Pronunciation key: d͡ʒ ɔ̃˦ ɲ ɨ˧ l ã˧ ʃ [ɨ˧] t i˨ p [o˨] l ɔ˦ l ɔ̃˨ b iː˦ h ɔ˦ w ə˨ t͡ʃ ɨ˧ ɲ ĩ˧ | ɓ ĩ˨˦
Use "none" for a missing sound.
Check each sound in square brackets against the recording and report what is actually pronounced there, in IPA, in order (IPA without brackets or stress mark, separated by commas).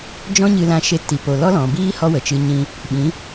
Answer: e˧, o˨